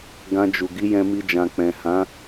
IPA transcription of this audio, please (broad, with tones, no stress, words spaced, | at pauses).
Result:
ɡã˧d͡ʒu˨ ɡi˨˦jɛ̃˧mi˧d͡ʒã˨ k͡pɛ̃˨hã˨˦